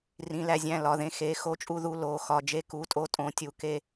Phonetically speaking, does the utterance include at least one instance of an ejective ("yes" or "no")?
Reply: yes